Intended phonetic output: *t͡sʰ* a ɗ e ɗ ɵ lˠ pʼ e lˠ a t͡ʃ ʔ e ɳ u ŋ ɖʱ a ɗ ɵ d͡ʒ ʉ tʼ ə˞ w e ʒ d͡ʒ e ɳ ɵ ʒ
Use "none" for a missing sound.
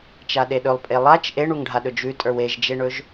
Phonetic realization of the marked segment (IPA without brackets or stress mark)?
t͡ʃ